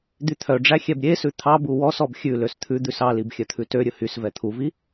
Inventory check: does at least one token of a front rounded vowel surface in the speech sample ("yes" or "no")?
yes